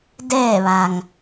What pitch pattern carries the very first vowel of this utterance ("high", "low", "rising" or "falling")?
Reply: falling